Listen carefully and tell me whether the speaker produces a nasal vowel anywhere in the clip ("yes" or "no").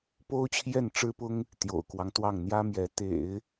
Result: no